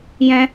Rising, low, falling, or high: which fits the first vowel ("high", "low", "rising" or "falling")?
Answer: high